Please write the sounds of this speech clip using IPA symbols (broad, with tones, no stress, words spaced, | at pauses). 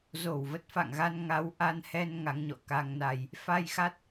zo˧˩wvə˦˥t̚fa̰˧˨ŋɣa˧n ŋa˨˦wʔa˧nhɛ˧n ŋa˨˦ŋɲɔ̰˧˨ka˧ŋna˧j | fa˧jxa˦˥t̚